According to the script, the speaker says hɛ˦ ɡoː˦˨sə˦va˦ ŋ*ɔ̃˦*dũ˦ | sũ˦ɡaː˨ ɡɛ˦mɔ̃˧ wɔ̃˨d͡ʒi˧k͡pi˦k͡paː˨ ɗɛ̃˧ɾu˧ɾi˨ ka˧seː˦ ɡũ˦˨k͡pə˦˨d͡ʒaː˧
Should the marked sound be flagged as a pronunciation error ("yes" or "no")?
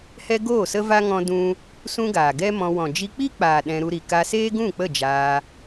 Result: no